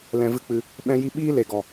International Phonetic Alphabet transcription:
lɛ̃˧vɨ˦k͡pɨ˧ | ɓɛ̃˦ji˦ ɓiː˦le˨ɡɔ˨

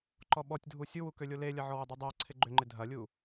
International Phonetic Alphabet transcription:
ǃɔɓɔtʲdʱu sʲuwu kølʲolelʲɐ ʕɔwʏdˤidˤœɐ̯ ǀʰɪɡ͡ǃʏŋ͡ǃɪ dʱɐlʲu

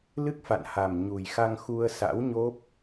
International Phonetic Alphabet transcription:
lɨ˦˥k̚fa̰˧˨nha˨˩m ɲu˨˩jxa˧ŋ xu˧ə̯sa̰˧˥wɲo˦˥p̚

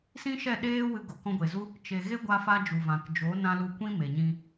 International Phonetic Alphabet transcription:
sĩ˦ʃɛ˦˨ ɗeː˦ wɨ˧ɡo˨ kɔ̃˧ɡʷe˨zu˦ | t͡ʃe˨ ɣe˦ ɡʷa˧fa˧ d͡ʒu˨vã˨k d͡ʒo˨˦nã˧ lu˧kʷĩ˦ me˨ɲĩ˧

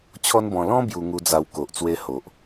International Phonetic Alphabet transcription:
t͡ɕʰɔ˦nbɔ̃˧ lɔ̃˦ bju˧ŋu˧d͡za˧wko˨ʔ t͡swe˦ho˨ʔ

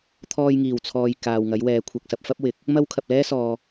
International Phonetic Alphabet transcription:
t̪ʰɔː˧jŋiː˨˩wt͡sʰɔː˨j kaː˨wŋɐ˨˥jwɛː˨˥ kʷʰɐ˨k̚sɐ˧p̚fɐ˥p̚wɪ˨˥k̚ | mɐ˥wkʰɐ˨p̚ lɛː˥sɔː˨

